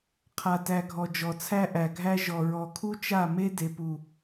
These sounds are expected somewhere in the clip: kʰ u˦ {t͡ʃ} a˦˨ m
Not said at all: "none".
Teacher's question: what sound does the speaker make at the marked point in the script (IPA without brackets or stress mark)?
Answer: t͡ʃ